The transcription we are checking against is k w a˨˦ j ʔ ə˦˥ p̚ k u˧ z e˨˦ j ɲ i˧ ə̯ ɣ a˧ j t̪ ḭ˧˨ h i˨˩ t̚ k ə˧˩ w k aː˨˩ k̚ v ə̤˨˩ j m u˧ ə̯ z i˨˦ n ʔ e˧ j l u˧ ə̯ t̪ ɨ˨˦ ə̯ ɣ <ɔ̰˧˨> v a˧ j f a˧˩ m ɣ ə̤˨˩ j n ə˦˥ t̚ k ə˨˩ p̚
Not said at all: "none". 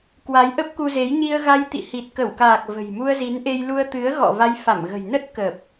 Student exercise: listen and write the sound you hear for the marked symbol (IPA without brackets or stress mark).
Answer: ɔ̰˧˨